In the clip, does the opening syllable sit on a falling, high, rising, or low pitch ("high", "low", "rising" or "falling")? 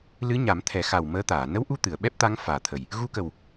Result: rising